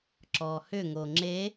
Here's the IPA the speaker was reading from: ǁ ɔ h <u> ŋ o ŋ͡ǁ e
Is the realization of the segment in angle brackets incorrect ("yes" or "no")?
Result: yes